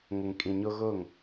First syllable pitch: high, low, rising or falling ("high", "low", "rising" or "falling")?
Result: low